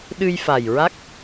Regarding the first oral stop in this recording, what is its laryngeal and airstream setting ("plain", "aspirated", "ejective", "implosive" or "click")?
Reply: implosive